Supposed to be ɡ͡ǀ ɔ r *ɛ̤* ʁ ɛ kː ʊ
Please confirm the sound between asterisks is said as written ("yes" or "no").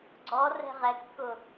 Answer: yes